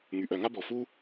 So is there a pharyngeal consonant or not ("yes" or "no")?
no